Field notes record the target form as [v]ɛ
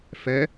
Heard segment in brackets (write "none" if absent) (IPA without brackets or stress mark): f